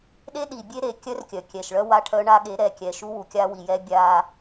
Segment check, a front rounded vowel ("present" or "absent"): present